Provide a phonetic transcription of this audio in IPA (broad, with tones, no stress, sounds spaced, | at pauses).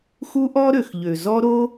x u˦ ʔ ɔ˦ ɾ ø˨ x ʎ ø˨ z ɔ˦ ɾ o˦